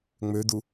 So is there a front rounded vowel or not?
yes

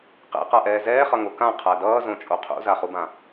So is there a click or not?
no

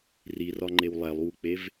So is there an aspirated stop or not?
no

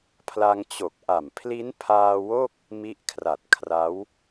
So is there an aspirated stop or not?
yes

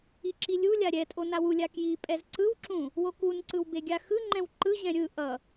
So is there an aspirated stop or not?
no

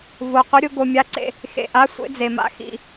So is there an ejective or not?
no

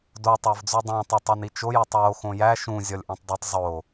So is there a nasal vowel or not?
yes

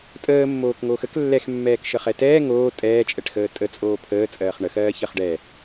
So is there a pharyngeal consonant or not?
no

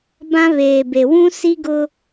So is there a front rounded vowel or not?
no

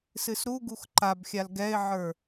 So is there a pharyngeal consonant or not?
yes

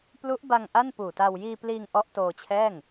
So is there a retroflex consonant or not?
no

